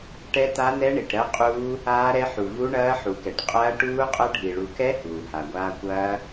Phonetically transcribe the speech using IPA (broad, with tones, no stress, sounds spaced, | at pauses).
ʈ ɛ˦˥ t a˦˥ n ɛ˦˥ ɳ i˨ ʈ ɾ ɜ˦˥ qʼ uː˦˥ | aː˦˥ ɾ ɛ˦˥ ħ u˨ v u˦˥ ɳ ɐː˦˥ ħ u˨ k ɛ˨ ʈ qʼ ɐː˦˥ ʈ uː˦˥ qʼ ɐ˦˥ ɖʱ i˨ ɭ u˨ k ɛ˦˥ h uː˨ h a˨ ɡʷ aː˦˥ kʷ ɐː˦˥